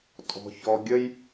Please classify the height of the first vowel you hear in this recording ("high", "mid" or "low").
mid